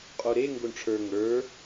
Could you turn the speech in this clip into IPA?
qʼ o ɾ e ŋ ɡ o ɳ ʈ͡ʂʰ ə˞ ŋ ə˞

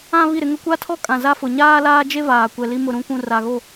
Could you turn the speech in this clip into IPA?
ã˦ β i˦˨ ɾ ɪ˦ ŋ ʊ˦ kʷ a˦ tʰ ɔ˦ kʼ ã˨ z a˦ f ʊ˨ ɲ aː˦ l aː˦ d͡ʒ e˦ v aː˨ kʷ ɛ˨ l i˦ m ʊ˨ ɾ ũ˨˦ kʷ ũ˨ r a˨ ɣ o˦˨

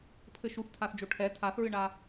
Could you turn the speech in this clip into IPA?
pʰ ɘ ʃ u θ tʰ a θ d͡ʒ o ʈʰ ɛ tʰ a θ ɹ ɨ ɳ a

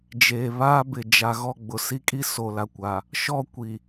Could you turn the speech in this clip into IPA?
d͡ʒ eː˨ β aː˦ b ɪ˨ d͡ʒ a˨ ɣ ɔ˦˨ ɡ͡b ʊ˨ s i˦ kʼ i˦ s o˨ l a˨ kʷ a˨ | ʃ ɔ˦ kʷ i˨

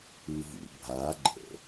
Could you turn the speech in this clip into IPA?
ɯ v ṵ bʱ a ɡ͡ǃ ə̰

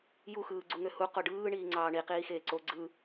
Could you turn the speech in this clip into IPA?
j u x ɯː ɡ͡ǀ u ŋ ø h u q o ɖ ɯː ɳ iː ŋ͡ǀ ɑː ɳ i q iː x eː ǀ o ɡ͡ǀ ɯ

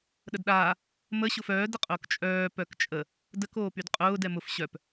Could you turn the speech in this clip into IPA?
ɗ ə d ɗ aː | m ə ɕ ʊ f œː d ə qʼ ʊː k t͡ʃʼ œː p œ k t͡ʃʼ ə | d ə k oː p y d qʼ ʊː d ɛ m ʊ f ɕ œ p

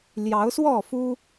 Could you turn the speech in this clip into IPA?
l j ɑ˨˦ ʊ̯ s w ɔ˥˨ f u˦

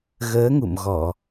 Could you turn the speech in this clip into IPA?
ɣ əː˨˦ ŋ ṵ˧˨ m ɣ ɔ˧˩˨

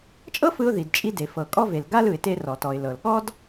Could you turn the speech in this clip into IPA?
t͡ʃʼ ɤ˥ f ɯ˧ ʊ̯ ð i˩ d t͡ʃʼ i˧ d e˩ f ɤ˩ kʼ ɔ˧ v e˩ l ɡ a˥ l ɯ˩ ɪ̯ t e˧ r ɔ˩ t ɔ˩ ɪ̯ l ɤ˩ l ɠ ɔ˥ d

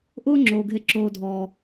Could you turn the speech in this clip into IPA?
ʔ ʊː˦ ŋ͡ǁ oː˨ ɡʱ e˦ ǁ oː˦ dʱ ɔː˦

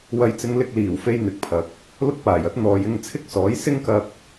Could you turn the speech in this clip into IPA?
w ɐ˨˧ j t͡s ɪ˨˧ ŋ l ɪ˧ k̚ l iː˨˩ w f e˧ j n̪ ɪ˨˥ k̚ pʰ ɐ˨ k̚ | l ʊ˥ k̚ p aː˨˩ j ɐ˧ t̚ n̪ ɔː˨ j ɪ˧ ŋ t͡sʰ ɪ˥ k̚ s ɔː˨˥ j s ɪ˥ ŋ k ɐ˧ k̚

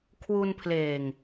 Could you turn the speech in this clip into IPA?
kʰ w u˧ n pʰ l eː˨˩ ŋ

